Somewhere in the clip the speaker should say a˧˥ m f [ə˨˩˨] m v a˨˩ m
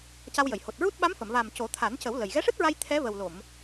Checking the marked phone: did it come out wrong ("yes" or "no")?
no